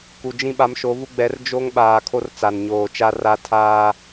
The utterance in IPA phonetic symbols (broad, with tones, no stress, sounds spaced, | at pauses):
k u˨ d͡ʒ ĩ˦ ɓ a˨˦ m ʃ o˨˦ v u˦ ɡ͡b ɛ˨˦ r d͡ʒ o˦ ŋ ɓ aː˨ kʰ o˦ r t͡s a˨ n ɲ oː˨ t͡ʃ a˦ r a˦ tʰ aː˦